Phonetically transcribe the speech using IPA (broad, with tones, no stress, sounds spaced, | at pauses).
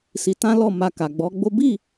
s i˧ t ã˦ l ɔ˦˨ m a˧ k a˨ ɡ͡b ɔ˨˦ ɡ͡b o˦ b i˦˨